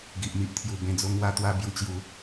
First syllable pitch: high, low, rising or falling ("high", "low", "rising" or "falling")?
low